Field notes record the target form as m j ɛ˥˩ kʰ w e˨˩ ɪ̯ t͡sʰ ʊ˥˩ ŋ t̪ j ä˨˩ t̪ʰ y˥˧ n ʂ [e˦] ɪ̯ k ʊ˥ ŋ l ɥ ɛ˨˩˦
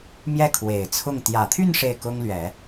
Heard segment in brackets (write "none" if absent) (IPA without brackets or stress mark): e˥˩